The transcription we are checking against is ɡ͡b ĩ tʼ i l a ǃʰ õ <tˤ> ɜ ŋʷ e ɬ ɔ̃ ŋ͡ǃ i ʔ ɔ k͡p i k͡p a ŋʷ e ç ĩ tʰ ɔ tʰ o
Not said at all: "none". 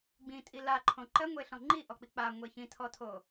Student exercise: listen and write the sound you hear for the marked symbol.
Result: ǃ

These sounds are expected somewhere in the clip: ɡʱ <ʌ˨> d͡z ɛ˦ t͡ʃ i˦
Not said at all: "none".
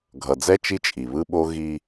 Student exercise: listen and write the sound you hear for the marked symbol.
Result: ʌ˨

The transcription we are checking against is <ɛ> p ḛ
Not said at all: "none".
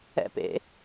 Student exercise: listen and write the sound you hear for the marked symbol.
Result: ɛ̰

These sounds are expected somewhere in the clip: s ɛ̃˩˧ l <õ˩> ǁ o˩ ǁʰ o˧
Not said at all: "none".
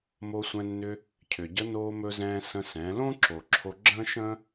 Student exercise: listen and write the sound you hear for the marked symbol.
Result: õ˥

